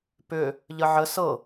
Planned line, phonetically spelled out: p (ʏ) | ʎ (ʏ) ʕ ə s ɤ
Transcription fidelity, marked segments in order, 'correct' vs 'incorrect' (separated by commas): correct, incorrect